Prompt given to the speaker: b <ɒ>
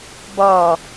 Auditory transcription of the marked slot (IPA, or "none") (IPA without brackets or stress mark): ɒ